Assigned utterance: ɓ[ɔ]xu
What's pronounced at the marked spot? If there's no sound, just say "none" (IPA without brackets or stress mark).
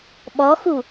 ɔ